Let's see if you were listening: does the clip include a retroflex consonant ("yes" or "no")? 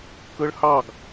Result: yes